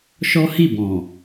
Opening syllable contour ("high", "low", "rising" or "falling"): high